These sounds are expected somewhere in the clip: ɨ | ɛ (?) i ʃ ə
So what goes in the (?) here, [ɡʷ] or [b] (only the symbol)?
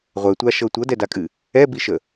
b